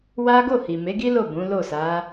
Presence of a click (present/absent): absent